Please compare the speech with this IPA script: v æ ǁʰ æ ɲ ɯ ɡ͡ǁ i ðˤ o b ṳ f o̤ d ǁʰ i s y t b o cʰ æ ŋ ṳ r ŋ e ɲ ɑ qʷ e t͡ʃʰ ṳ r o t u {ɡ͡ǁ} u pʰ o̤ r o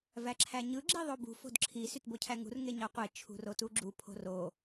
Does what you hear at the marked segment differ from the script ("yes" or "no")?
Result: no